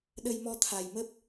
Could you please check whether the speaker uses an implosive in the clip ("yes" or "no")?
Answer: yes